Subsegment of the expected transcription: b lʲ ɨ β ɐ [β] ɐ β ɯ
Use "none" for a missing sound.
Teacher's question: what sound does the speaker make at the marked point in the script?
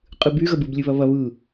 β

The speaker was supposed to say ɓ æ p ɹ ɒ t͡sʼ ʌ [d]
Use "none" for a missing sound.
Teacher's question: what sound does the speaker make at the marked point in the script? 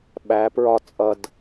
d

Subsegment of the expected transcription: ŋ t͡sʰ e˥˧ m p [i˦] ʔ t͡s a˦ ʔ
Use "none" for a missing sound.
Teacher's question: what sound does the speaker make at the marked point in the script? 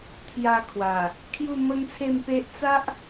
e˦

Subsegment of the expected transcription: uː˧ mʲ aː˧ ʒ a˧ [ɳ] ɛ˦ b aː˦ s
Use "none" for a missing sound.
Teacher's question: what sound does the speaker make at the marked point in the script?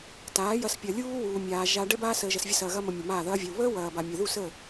ɖ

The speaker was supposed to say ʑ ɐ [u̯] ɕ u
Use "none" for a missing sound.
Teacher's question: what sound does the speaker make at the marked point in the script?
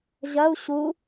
u̯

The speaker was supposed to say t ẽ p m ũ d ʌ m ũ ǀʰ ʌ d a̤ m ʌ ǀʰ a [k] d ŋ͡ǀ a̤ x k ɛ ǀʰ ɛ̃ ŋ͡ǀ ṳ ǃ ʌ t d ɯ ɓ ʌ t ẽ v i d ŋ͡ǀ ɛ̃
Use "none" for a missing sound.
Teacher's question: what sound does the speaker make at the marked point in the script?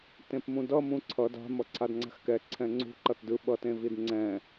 none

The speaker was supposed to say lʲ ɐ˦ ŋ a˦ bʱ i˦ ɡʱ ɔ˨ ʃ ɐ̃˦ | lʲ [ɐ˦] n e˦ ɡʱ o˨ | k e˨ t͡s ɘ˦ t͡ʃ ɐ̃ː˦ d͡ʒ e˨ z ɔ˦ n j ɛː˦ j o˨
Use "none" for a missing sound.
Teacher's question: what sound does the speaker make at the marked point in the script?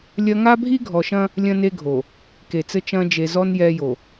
ɐ̃˦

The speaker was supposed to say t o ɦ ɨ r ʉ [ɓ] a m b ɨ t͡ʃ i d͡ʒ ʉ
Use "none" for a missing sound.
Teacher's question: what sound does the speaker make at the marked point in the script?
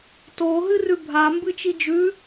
bʱ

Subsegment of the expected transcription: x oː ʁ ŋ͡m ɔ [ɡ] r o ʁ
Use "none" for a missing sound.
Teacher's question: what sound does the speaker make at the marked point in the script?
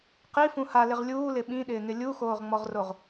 ʁ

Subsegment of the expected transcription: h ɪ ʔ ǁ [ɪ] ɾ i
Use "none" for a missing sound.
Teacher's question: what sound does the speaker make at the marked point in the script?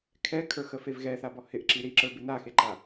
i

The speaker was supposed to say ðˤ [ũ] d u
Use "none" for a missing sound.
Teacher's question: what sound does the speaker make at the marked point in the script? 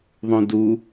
ũ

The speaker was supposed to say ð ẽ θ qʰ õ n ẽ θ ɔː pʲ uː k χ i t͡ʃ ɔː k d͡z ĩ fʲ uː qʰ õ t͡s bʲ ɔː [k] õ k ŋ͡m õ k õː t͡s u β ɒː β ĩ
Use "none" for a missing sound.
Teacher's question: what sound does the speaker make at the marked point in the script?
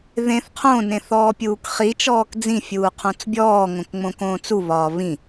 ŋ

